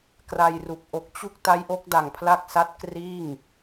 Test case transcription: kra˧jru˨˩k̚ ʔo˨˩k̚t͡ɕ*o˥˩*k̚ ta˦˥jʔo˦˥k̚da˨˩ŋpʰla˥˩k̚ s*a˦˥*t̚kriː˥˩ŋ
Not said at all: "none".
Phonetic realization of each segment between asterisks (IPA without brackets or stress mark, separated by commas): u˥˩, a˦˥